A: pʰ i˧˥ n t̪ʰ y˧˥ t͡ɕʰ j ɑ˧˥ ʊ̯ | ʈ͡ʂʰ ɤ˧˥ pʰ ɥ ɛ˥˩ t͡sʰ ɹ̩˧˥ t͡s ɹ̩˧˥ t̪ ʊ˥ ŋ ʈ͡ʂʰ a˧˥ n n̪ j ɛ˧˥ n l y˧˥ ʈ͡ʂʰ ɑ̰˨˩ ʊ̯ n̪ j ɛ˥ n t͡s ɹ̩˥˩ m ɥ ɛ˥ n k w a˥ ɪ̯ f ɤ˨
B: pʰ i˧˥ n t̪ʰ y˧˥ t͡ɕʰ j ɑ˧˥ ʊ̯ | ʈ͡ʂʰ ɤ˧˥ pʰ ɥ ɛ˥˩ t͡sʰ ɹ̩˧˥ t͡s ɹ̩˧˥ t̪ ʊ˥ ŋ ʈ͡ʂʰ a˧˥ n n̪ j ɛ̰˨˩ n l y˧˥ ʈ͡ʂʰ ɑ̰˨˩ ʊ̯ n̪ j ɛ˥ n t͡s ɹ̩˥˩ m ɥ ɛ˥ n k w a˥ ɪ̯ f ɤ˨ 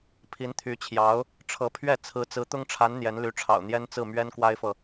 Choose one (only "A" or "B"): A